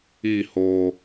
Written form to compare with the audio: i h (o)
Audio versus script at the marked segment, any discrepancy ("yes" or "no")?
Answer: no